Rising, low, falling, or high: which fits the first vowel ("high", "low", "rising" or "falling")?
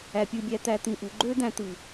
low